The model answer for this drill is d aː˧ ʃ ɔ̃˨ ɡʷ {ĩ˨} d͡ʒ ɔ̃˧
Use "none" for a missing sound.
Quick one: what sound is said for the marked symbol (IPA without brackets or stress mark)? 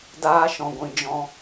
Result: ĩ˨